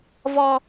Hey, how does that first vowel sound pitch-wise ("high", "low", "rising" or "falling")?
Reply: low